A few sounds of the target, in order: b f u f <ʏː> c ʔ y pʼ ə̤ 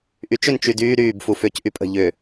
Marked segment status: correct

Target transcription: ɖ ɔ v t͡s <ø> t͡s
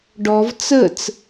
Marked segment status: incorrect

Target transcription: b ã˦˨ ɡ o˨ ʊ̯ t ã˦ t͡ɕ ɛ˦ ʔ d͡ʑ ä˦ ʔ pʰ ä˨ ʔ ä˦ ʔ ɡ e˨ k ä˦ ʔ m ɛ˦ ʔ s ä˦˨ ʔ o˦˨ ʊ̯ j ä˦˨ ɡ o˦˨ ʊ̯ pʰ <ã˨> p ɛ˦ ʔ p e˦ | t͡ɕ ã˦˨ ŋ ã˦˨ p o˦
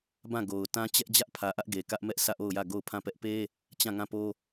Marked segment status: incorrect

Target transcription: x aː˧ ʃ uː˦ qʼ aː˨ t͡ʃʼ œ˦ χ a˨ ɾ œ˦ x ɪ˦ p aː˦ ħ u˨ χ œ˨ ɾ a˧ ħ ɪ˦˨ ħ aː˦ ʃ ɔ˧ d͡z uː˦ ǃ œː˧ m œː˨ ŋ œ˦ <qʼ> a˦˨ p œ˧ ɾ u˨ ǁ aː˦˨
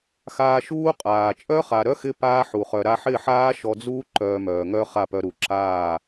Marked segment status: incorrect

